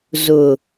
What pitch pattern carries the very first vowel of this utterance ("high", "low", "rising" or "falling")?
low